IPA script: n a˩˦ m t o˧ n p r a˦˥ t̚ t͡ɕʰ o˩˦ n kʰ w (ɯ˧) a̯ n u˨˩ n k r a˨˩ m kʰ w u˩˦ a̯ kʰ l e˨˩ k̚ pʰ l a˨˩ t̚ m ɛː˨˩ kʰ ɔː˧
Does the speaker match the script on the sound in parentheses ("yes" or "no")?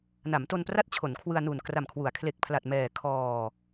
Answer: yes